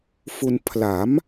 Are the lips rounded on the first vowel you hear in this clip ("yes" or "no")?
yes